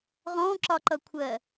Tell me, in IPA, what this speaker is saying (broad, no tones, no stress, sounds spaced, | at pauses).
ʁ ɔ̃ ǁ ɒ ǃ ʌ kʷʰ ɜ